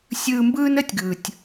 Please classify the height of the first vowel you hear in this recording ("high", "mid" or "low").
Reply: high